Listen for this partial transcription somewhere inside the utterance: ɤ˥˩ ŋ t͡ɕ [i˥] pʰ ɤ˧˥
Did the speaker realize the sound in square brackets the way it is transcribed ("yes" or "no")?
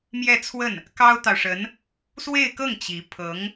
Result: no